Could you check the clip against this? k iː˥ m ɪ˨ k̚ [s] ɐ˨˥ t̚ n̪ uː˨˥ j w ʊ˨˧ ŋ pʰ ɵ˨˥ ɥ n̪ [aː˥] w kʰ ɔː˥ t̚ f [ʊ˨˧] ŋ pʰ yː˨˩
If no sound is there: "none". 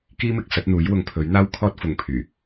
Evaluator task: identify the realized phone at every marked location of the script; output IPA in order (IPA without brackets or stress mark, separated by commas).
s, aː˥, ʊ˨